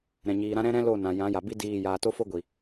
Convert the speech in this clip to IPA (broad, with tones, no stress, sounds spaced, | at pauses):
ɾ ɛ̃˨ ɲ iː˨ ɾ ã˦ ɾ ɛ̃˦ ɾ ɛ̃˦ l o˦˨ n ã˨ j ã˨˦ j a˨ b i˦ d iː˦˨ j aː˧ t o˦ f o˦ ɡʷ i˨